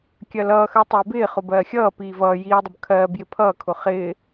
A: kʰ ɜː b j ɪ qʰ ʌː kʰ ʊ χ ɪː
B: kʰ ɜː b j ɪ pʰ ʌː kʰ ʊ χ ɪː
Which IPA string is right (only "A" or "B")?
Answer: B